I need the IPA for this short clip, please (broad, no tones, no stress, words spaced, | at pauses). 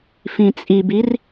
fĩt͡sʼibir